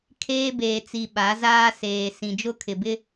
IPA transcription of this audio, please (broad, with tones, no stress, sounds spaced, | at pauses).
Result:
kʰ eː˦ b eː˨ t͡s i˨ ɓ a˨˦ z aː˦ s eː˨ s ĩ˨ d͡ʒ ʊ˦ kʰ ɪ˨ b ɪ˦